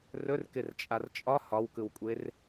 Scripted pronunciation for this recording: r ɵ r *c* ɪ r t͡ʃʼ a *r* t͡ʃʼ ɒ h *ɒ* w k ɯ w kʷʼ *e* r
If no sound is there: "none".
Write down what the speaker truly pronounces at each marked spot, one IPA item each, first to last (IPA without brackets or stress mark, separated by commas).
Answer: k, r, ɒ, e